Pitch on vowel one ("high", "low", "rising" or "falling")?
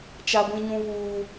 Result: high